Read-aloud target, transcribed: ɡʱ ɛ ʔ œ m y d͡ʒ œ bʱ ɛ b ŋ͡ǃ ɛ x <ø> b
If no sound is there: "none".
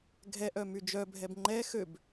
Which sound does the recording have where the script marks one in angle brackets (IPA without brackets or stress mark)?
ø